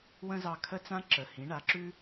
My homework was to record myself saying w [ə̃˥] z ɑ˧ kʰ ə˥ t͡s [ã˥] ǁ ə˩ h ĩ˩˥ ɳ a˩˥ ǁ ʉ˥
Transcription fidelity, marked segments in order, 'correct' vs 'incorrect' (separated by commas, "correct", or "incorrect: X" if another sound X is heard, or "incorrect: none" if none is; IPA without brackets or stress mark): correct, correct